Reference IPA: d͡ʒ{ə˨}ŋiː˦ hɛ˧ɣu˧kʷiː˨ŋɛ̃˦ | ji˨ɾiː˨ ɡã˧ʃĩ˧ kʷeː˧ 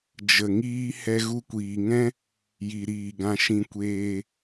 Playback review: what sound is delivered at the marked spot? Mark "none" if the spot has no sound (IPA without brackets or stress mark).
ə˨